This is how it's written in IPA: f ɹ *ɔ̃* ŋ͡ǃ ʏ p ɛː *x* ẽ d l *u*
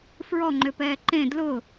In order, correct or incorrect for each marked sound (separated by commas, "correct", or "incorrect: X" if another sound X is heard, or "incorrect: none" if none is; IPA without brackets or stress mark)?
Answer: incorrect: ɔ, incorrect: ǃ, incorrect: ʊ